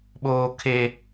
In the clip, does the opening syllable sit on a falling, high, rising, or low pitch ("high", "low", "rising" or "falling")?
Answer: high